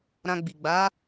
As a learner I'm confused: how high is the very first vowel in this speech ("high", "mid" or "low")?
low